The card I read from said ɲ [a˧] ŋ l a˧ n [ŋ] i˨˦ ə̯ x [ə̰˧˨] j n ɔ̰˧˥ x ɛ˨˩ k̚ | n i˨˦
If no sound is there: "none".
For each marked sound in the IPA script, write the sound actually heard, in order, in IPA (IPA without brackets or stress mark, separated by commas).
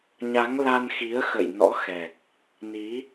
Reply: a˨˦, x, ə̰˧˨